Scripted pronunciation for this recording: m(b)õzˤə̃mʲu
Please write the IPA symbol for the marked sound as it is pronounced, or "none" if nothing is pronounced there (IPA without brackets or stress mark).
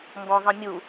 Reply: b